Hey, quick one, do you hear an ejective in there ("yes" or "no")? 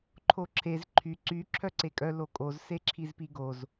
yes